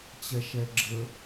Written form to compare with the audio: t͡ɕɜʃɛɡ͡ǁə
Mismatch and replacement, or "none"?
ɜ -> ɛ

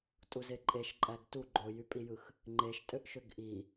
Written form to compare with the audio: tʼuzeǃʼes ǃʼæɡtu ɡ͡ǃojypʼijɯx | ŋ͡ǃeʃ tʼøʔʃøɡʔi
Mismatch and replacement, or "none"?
s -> ʃ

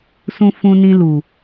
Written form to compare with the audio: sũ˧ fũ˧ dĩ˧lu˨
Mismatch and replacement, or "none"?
d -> n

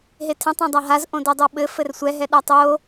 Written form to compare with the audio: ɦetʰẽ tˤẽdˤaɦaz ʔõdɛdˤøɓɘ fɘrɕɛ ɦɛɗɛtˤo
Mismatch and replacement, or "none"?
ɕ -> sʷ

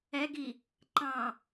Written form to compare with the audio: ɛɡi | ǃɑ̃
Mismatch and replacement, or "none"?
none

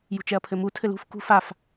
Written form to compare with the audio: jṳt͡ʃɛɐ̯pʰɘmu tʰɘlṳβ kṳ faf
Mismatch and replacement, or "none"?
β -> f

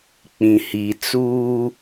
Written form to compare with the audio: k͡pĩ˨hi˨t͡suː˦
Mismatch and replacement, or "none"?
none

